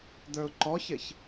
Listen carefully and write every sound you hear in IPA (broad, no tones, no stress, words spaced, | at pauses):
d̪ə˞ʊ̯ǃɔçɪç